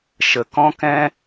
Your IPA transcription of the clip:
ʃə˨kɔ̃˦ kɛ̃˦

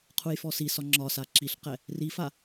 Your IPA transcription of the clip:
qʰujfɔsisɒ ŋ͡ǁɒsa ǁiɬqɛ | rifa

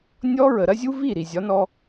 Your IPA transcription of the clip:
nʲɔ˦ ɹə˨ɾɐ˦zʲu˦vi˦˨ ɾi˨zʲɒ˨˦nɔ˧

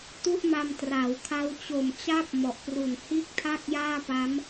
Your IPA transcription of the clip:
tu˥˩ʔma˧mtra˩˦wkʰa˦˥w t͡ɕo˨˩mt͡ɕa˥˩p̚ mɔ˨˩ʔpru˨˩n hiː˥˩k̚tʰa˥˩k̚jaː˥˩ pa˦˥m

